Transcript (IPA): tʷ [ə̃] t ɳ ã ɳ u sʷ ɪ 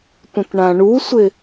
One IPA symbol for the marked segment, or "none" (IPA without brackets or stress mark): ə̃